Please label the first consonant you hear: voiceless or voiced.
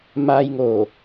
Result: voiced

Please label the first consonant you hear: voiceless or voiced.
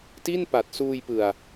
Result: voiceless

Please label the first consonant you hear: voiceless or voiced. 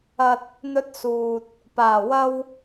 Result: voiceless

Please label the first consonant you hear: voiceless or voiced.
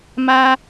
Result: voiced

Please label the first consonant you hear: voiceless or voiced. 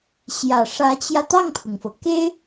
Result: voiceless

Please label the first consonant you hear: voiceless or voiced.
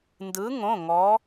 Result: voiced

